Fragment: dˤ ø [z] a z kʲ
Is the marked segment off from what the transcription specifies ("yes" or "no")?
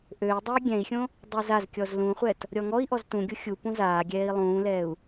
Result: no